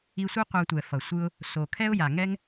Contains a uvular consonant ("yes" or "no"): yes